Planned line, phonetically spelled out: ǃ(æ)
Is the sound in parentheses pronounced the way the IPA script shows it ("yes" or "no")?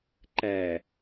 yes